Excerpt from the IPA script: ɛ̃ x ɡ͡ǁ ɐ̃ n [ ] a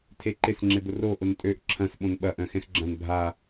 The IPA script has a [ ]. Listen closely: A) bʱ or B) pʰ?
A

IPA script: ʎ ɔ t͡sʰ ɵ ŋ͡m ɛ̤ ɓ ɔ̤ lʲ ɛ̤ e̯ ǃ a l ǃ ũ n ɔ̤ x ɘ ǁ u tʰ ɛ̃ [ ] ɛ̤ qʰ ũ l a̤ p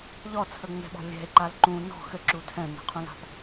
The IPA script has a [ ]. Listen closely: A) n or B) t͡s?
A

